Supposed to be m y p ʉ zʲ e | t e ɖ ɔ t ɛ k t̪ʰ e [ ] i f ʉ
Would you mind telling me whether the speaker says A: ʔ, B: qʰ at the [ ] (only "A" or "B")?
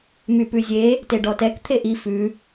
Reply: A